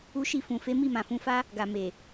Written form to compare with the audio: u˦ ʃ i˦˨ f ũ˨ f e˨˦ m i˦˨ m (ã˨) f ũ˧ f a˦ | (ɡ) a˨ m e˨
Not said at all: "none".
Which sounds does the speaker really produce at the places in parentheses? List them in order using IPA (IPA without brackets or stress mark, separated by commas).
ã˨, ɡ